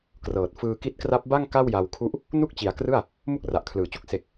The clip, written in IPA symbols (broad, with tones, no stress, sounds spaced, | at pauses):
k r ɤː˨˩ t̚ f ɯː˧ k i˦˥ t̚ k r a˦˥ p̚ b a˥˩ ŋ k a˥˩ w j a˧ w kʰ u˦˥ ʔ | n u˥˩ k̚ t͡ɕ i˩˦ a̯ k r ɯ˥˩ a̯ | m u˥˩ k̚ r a˨˩ ʔ kʰ l ɯː˨˩ t͡ɕ u˥˩ k̚ s e˨˩ k̚